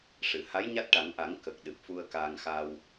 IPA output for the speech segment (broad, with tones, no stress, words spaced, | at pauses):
ʂɨ˨˩˨ha˧˥j ɲa˦˥t̚ʈa˨˩˦ŋʔa˨˩˦ŋ kə˨˩k̚ ɗɨ˨˩p̚fu˧ə̯kaː˧ŋxa˧w